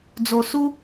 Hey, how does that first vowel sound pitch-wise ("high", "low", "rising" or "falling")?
low